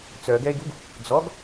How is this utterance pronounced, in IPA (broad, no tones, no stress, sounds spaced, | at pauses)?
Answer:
t͡s œ ɡ ɛ e̯ ɡ u ɡ | d͡z ɔ ɡ